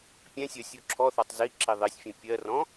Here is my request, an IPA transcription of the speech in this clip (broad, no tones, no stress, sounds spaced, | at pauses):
pʲ ɛ̃ sʲ ɜ sʲ u ǁʰ ɔ θ ɒ tˤ z i ǁ i ðˤ i sʲ fʲ ɛ̃ pʲ ɜ r ɔ̃